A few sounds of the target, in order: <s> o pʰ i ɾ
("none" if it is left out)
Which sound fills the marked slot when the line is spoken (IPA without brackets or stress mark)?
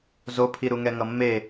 z